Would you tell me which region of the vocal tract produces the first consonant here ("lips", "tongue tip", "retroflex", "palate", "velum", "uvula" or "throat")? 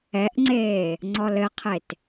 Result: throat